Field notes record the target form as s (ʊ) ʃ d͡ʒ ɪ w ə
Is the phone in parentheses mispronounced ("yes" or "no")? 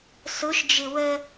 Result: no